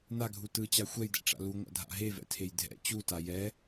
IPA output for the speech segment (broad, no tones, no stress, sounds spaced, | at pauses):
n a ɡʱ u t ɯ t͡ɕ a xʷ ɛ j d ɛ̰ ʈ͡ʂ a̰ l u ŋʷ a̰ dʱ a̰ ɦ e v ɛ̰ tʰ e j dʱ ɛ̰ t͡ɕ u t a j ɛ